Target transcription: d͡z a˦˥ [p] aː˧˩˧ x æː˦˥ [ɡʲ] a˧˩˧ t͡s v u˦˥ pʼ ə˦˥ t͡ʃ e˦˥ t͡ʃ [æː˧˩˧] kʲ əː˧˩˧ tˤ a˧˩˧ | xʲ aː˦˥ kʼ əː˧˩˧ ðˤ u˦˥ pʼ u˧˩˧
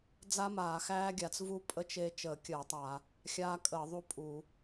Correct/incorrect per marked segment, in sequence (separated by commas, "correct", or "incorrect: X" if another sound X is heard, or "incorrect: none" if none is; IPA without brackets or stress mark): incorrect: m, correct, incorrect: əː˧˩˧